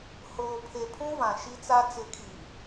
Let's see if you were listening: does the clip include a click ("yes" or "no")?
no